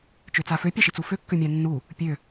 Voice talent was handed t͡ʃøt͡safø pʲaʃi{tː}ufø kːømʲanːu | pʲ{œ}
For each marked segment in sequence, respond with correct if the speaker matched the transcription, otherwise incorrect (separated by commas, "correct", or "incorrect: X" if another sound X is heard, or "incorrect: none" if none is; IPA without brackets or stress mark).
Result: incorrect: t͡s, incorrect: ø